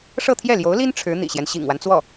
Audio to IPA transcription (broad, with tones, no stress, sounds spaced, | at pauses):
ʂ ɤ˥˧ t̪ʰ j ɛ˥˩ l j o˧˥ ʊ̯ l i˥ n ʈ͡ʂʰ ɻ̩˧˥ n̪ ḭ˨˩ ɕ j ɛ˦ n ɕ ḭ˨˩ ŋ w a˦ n t͡s w ɔ˥˩